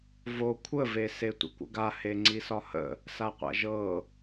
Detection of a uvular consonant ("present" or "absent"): present